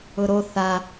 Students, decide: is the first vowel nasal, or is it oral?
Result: oral